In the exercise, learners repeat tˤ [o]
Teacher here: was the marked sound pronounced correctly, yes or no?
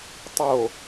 yes